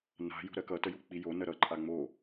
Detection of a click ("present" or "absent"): present